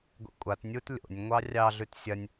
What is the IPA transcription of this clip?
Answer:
ɡʷ ḛ kʷʼ a t nʲ u t lʲ o̰ nʲ ŋʷ ɑ rʲ ɑ ɮ ʉ t sʲ ɐ nʲ

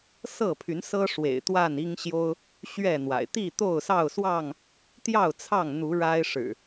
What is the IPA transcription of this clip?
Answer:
s ɤ˥˨ pʰ y˨˦ n s ɤ˦ ʂ w ḛ˨˩ ɪ̯ t̪ w a˥˨ n i˦ ŋ ɕ j o˦ ʊ̯ | ɕ ɥ ɛ˥˨ n̪ w a̰˨˩ ɪ̯ t̪ i˥˨ t̪ o˥˨ ʊ̯ s ɑ˥˨ ʊ̯ s w ɑ˥˨ ŋ | t̪ j ɑ˥˨ ʊ̯ t͡sʰ ɑ˥˨ ŋ n̪ u˨˦ ɻ a˦ ɪ̯ ʂ ɻ̩˨˩

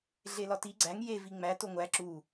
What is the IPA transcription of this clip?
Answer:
ɮ e l ɒ t i ɡ͡ǀ æ ŋ j e v i ŋ͡m æ t o ŋʷ æ ǁ u

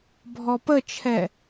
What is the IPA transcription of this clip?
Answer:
bʱ ɔ p ə t͡ʃʰ ɛ

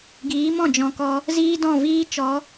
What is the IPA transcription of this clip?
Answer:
ɡ iː˨˦ m ɔ̃˦˨ d͡ʒ ɔ̃˨ k ɔ˧ | z iː˦ d ɔ̃˦˨ v iː˦ t͡ʃ ɔ˨˦

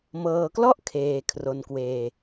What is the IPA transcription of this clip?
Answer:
m ɤː˧ k l ɔ˥˩ ʔ kʰ eː˧ kʰ r o˧ n k w eː˧

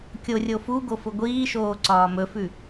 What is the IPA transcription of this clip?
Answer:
kʲ o rʲ o f u ɡ o f ʊ ɡʷ iː ʃ oː ǀ ɒː m ɵ f ʉ

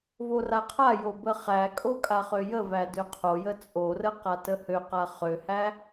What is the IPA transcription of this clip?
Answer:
v o r a qʰ a j o b ə χ æ kʼ o kʼ a χ ø j ə v æ d ø qʰ o j ə t͡sʼ o r ə q a t ə h ø q a χ ø h æ

